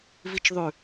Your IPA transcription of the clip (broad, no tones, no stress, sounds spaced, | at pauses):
v i t͡ʃ ðˤ ʉ